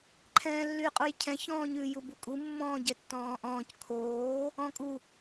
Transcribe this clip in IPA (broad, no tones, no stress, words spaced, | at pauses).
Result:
ǃʰɛ̃ːlːyqʼujcʰɛ̃ çɔ̃ːɲʉ jubukʼu mːɔ̃ːɟɛtːɔ̃ːʔɔ̃ːc kʰoː | ɔ̃kʼu